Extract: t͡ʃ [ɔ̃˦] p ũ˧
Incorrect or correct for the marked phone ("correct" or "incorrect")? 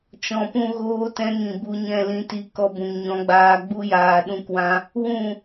incorrect